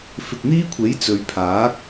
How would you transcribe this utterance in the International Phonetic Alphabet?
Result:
f ɪ˨ k̚ n̪ iː˥ kʷʰ e˨˥ j t͡s ɵ˨˧ ɥ pʰ aː˨˥ k̚

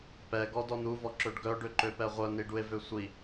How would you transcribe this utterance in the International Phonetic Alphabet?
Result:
p ɛ ɡ ɔ d ɔ n u v ɔ ǁ ø ɖ ɡ œ ɖ ø ǃ ø p ɛ ʁʷ œ n i ɖ u e̯ v ø sʷ i

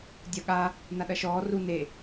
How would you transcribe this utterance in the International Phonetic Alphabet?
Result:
dʲ ɐ ɠ a | n a ɗ ɐ ʃ ɔː r u n e

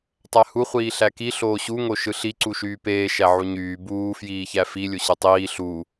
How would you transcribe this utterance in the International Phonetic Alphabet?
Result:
tˤ æ h u χʷ iː ɬ æ k i ɬ oː ɕ u ŋ o ʃ ɯ ɬ i ǀ u ʃ yː p eː ʃ æ ʕ u ɲ yː b uː f j iː ç æ f i lʲ o ɕ ɯ tˤ iː ɬ u

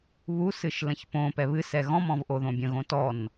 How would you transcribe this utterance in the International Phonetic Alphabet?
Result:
β u s ɨ ʃ l ə̃ ç p õ p ɛ β ɨ s ɛ ɣ ɔ̃ m ɔ̃ v ʔ o ð õ bʲ ə̃ ɣ õ t ɔ n

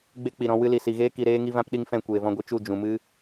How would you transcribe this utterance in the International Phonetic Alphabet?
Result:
ɡ͡b e˦ k͡p i˨ ɾ ɔ̃˧ w ɨ˧ l i˨ s i˨ ɣ eː˦ k i˧ ɾ eː˦ ŋ i˦ v ã˦ p ɗ i˦ ŋ f ɛ̃˦˨ kʷ eː˨ v ɔ̃˧ ɡʷ ɨ˧ t͡ʃ u˦˨ d͡ʒ ũ˨ m ɨ˦

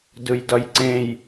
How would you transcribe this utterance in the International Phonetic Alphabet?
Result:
d ɯ j d ʌ j ǀ ẽ j

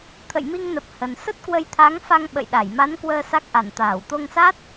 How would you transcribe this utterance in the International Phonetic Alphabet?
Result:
t̪ʰ ə̰˧˨ j m i˧ ŋ n ə˨˩ p̚ h ə˨˩ n s ə˦˥ t̚ k w ə˧ j t̪ʰ a˨˦ ŋ f a˧ ŋ ɓ ə̰˧˨ j ɗ a˧˩ j m a˨˦ n k w əː˧ s a˦˥ k̚ ʔ a˧˩ n t̪ aː˧˩ w t̪ o˧ ŋ s a˦˥ t̚

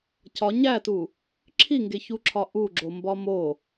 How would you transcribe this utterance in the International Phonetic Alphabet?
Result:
c ɒ ɲ æ t u | ǁʰ i ŋ ɡ e ç u ǁʰ ɒ ʔ u ɡ͡ǁ o m b ɒ m o

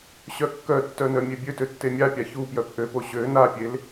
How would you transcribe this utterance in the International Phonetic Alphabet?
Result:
ɕ œ kː œ tː œ n œ mʲ e bʲ ø t ø tː e mʲ a pʲ a ç u p j œ p ʔ ø p o ɕ ø n a pʲ e l

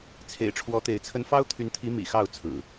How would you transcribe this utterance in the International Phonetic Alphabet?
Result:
t͡sʰ ḛ˨˩ ɪ̯ ʈ͡ʂʰ w ɔ˨˦ t̪ e˨˦ ɪ̯ t͡sʰ ə˦ n f ɑ˦ ʊ̯ t̪ʰ y˨˦ n t̪ʰ i˨˦ m ḭ˨˩ x ɑ˥˨ ʊ̯ t͡sʰ ɹ̩˨˩

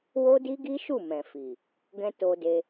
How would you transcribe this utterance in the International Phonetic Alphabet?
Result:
w o˦ d i˦ ɡ i˦ ʃ u˦˨ m ɛ̃˨ f i˨ | ɡ ɛ̃˦ t o˧ d e˧

